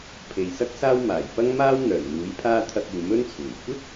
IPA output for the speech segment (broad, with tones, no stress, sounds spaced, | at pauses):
pʰ e˨ j s ɐ˥ k̚ s aː˥ w m aː˨˩ j p ɐ˥ ŋ m aː˥ w n̪ œː˨˩ n m uː˨˥ j pʰ aː˥ t̪ʰ ɐ˧ k̚ uː˨ m ɵ˥ n t͡sʰ uː˨˩ j kʷ ɪ˥ k̚